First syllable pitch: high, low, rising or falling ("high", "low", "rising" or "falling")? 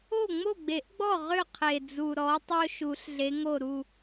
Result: falling